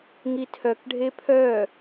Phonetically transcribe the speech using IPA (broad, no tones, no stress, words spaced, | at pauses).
ŋitʰœkɖʱe pʰœ